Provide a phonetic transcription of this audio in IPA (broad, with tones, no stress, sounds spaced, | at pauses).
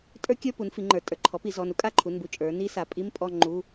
tʼ ə˞˦˥ kʲ ə˞˧˥˧ p u˩˧ n f i˩˧ ŋ͡ǃ ə˞˩˧ tʼ ə˞˩˧ ǃʰ ɔ˩˥ p i˩˧ z ɔ˩˧˩ n u˦˥ kʼ a˧˥˧ ǃʰ u˩˧˩ n b u˧˥˧ t͡ʃʼ ə˞˩˧ n i˦˥ s a˩˥ pʼ i˧˥˧ m pʼ ɔ˥˧ ŋ͡ǃ u˧˥˧